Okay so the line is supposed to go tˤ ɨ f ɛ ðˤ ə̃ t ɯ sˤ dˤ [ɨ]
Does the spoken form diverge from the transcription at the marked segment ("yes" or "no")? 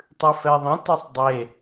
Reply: yes